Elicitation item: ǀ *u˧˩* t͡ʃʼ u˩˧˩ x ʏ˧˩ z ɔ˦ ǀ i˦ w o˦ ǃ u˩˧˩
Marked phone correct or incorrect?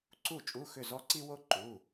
correct